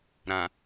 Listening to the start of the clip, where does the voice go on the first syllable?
low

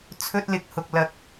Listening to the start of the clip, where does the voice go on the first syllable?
high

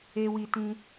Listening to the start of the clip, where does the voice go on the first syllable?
low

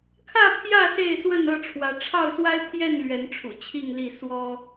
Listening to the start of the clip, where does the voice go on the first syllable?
falling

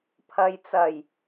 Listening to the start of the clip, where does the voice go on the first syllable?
low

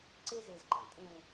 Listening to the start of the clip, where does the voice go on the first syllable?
high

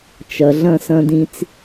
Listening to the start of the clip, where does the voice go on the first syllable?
low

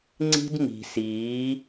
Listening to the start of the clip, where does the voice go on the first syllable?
high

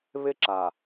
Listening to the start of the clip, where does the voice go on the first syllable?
high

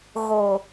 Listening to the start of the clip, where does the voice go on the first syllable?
low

